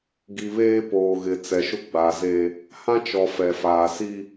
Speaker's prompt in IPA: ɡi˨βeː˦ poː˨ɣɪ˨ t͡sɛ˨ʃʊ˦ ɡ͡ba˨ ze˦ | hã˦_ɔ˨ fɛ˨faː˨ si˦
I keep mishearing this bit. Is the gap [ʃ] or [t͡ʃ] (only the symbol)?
t͡ʃ